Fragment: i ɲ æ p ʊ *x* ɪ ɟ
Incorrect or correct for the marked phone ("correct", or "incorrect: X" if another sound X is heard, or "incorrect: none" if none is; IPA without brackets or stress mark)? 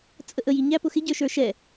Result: correct